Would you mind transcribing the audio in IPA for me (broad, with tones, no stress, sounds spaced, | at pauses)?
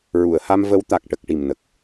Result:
ɹ u˨˩˨ ə̯ h a˧ m v ə˧˥ w t̪ a˨˩ k̚ ʈ ə˨˩ k̚ ʈ i˨˩ m n ə˨˩ k̚